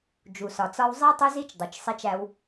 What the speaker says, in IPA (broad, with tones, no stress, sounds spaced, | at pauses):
d͡ʒ u˩ s ɒ˩ t͡s ɒ˧ w zˤ i˧ tˤ ʊ˧ z i˧ t͡ʃ dˤ ʊ˩ t͡ʃ sˤ i˧ t͡ʃ æ˧ w